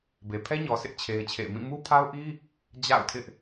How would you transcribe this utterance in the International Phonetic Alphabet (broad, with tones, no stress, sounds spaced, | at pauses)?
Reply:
b e˨ pʰ ɛ˦ ɲ ɔ˨ sʰ ɪ˦ ʔ t͡ɕʰ e˦ ɪ̯ t͡ɕʰ ḛ˦˨ ɪ̯ m ĩ˦˨ m u˦ pʰ a˦ ʊ̯ ʔ i˦ | d͡ʑ a̰˦˨ ʊ̯ tʰ ɪ˦ ʔ